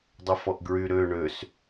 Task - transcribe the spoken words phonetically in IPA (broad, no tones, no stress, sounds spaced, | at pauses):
dˤ ʉ f ɔ ʔ ɡ ɹ y ɾ ø ɳ ø s